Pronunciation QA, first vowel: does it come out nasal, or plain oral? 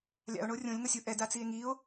oral